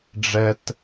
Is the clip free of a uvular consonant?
yes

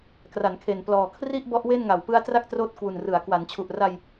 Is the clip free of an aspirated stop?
no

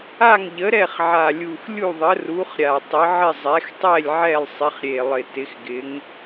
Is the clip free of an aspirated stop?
yes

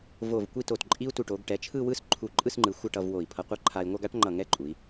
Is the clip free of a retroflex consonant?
no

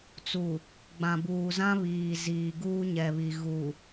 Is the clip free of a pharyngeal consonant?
yes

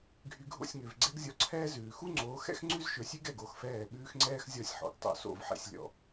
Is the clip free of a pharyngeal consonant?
no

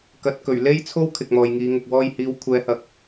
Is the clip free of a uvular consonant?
yes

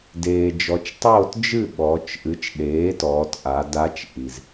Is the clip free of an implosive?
no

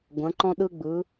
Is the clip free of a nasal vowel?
no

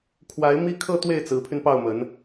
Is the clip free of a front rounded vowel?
no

